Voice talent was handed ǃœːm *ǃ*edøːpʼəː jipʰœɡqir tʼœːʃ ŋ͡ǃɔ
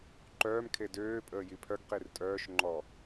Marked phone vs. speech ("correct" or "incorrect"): incorrect